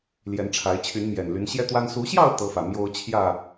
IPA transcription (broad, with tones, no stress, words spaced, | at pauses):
ljɛ˨˦nʈ͡ʂʰa˨˦ɪ̯ t͡ɕʰy˨˦nmjɛ˨˩nly˨˦n ɕjɛ˦t̪wa˦n su˨˦ɕjɑ˥˨ʊ̯ t̪ɤ˦fä˨ mjo˦ʊ̯ t͡ɕʰjä˥˨